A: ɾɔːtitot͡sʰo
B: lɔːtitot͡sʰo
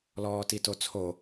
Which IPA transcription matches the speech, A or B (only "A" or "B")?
B